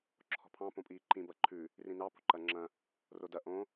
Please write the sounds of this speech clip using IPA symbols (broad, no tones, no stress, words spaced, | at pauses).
ǁʰɔ̤pʰɑ̃ põpʼiːǃĩ bɐǃʰʉ | rĩnɑ po̤ǃɐŋ͡ǁɐ̃ | rodɐ ʔõ